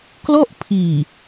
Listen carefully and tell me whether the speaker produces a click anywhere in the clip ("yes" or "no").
no